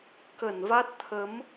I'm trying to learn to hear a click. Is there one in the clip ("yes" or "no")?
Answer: no